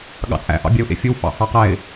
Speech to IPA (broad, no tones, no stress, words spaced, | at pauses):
ɠɑ̰t͡sʼæ̰ʔɑ̰ bʲæʊ̯ʔḛfʲɵw fɑ̰hɑqæɪ̯